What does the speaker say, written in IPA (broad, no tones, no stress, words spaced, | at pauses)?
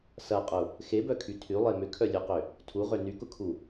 sɐqʼʊ | xebœkʰy tʰylˠe mʏkʰœlʲøqʏ | tʰuʁø nykʊkʰu